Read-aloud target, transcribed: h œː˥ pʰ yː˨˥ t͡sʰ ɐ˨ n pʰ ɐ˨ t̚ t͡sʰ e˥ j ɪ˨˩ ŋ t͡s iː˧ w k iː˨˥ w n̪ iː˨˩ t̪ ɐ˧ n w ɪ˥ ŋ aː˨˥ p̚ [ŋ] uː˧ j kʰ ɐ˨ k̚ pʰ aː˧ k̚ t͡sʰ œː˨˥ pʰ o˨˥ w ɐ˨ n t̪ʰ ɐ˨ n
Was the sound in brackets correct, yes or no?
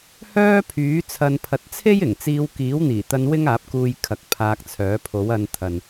no